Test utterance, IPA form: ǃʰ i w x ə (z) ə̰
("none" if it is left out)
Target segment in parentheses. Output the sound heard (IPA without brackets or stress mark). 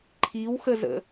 z